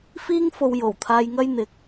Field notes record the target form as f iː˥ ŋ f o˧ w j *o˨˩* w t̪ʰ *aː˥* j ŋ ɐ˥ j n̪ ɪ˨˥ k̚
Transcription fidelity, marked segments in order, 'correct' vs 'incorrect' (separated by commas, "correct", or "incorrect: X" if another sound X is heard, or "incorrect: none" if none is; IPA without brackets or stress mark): correct, incorrect: aː˧